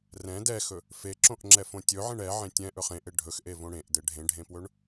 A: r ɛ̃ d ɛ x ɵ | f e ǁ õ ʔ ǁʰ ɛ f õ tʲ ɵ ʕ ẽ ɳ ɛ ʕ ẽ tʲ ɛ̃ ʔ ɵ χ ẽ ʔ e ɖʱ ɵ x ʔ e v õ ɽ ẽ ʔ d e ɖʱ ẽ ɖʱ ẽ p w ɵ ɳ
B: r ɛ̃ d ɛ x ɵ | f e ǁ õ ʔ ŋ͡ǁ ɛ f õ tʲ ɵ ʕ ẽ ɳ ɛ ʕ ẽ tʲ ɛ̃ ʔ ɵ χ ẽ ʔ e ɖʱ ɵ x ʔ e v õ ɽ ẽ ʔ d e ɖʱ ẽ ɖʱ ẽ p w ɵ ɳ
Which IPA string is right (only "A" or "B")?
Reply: B